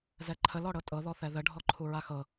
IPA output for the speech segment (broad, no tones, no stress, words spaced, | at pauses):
zɛǃʰəlɔɽɤ tʼɤðɔ θɛðə ɖʱɔǃʰuɹaxɤ